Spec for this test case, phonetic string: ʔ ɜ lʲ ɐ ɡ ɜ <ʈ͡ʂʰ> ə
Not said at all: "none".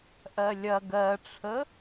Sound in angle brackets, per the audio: ʈ͡ʂʰ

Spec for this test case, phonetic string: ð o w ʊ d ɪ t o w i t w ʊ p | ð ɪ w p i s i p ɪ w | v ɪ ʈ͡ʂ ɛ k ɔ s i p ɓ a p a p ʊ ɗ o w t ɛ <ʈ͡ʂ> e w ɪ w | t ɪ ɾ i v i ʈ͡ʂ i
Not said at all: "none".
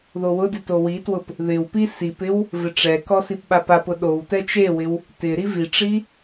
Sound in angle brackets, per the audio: t͡ʃ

